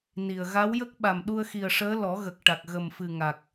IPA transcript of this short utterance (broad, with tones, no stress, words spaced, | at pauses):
ni˨˩ə̯ ɣa˧˥wjə˦˥k̚ɓa˨˩m ɗu˧ə̯xi˨˩ə̯ʂəː˧˥ lɔ˨˩˦ɣə˨˩k̚ʈa˨˩k̚ ɣə˨˩mfɨ˨˩ ŋa˨˩k̚